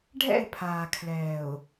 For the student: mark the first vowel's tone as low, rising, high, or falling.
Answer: falling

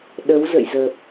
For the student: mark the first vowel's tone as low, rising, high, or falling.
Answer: rising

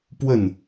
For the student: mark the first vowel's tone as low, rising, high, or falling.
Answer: falling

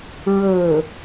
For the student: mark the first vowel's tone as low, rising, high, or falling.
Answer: low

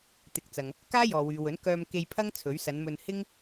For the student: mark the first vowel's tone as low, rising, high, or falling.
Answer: rising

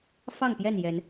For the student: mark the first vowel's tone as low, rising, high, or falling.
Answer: falling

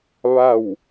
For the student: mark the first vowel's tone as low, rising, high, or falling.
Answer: falling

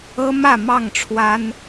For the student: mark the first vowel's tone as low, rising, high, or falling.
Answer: high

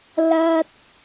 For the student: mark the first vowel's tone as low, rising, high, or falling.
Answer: high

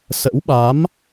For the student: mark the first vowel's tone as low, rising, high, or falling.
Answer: rising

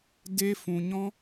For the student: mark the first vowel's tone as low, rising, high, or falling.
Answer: high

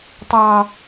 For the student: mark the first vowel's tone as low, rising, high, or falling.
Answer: low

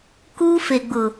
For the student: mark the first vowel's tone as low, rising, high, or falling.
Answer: high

